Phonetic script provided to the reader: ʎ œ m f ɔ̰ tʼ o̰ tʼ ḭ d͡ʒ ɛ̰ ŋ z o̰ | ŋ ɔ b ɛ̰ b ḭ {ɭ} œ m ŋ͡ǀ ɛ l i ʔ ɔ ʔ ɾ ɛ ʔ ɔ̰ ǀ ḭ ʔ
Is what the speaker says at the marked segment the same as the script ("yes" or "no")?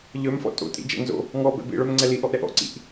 yes